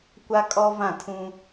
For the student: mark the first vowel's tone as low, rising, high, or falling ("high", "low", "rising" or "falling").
high